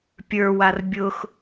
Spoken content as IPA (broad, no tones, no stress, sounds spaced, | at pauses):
pʲ ə˞ w a r bʲ ʊ x